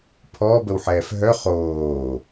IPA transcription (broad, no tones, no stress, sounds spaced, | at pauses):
pʰ ɔː b ə w ħ ɛː f ɦ œ χ oː